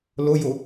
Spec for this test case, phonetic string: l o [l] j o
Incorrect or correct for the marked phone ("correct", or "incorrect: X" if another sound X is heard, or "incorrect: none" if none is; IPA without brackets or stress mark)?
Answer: incorrect: none